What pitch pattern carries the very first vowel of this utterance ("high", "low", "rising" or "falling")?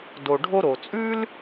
low